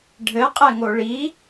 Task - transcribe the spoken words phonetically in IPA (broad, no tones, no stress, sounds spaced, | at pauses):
ɖʱ ɘ qʼ ɛ ŋ o ɭ i